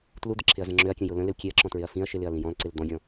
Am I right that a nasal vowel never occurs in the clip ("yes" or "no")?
no